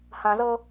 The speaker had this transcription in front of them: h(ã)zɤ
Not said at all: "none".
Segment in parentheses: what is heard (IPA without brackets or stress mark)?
ã